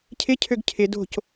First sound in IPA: cʰ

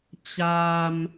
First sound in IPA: t͡ɕ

